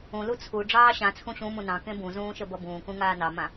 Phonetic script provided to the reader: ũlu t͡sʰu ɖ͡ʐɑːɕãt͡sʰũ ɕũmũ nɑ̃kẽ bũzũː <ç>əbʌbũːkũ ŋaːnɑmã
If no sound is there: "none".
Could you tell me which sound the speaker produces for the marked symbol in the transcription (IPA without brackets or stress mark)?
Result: ʃ